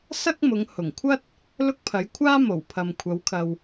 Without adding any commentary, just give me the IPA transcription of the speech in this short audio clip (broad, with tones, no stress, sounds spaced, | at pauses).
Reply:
s ɐ˥ k̚ m ʊ˨˧ ŋ h ʊ˨˩ ŋ kʷʰ ɐ˥ t̚ | l ʊ˥ k̚ pʰ ɐ˨˥ j kʷʰ aː˥ m o˨˩ w pʰ ɐ˨ m kʷʰ ɐ˨˧ w kʰ ɐ˨ w